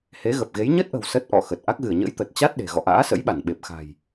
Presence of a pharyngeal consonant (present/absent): absent